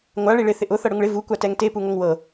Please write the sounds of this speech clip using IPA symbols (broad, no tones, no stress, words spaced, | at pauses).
ŋʷa ɭiɭɪ θɪʔʊ θɤɽʊŋɭɪ vu kʷatɛŋte puŋoŋwɤ